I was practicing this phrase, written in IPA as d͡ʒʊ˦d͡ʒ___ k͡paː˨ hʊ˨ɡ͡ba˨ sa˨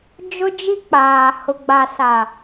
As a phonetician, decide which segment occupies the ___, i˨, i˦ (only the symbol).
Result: i˦